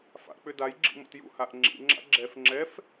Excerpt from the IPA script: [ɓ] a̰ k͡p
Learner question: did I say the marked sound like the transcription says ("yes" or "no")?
no